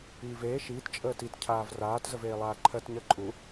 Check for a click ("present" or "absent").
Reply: present